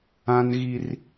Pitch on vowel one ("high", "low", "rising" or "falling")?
high